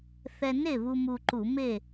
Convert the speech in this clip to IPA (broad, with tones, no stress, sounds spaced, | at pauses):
θ ɛ˧ n e˥˨ β u˧ m u˧ ǃ u˧˩˧ m e˥˨